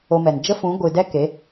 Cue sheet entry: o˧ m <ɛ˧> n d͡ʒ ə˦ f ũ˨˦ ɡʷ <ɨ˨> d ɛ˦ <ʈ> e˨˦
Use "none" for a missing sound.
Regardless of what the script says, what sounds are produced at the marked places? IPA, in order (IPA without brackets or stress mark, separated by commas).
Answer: ɛ˨, ɨ˨, k